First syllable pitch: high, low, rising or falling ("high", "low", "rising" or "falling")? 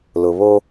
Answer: low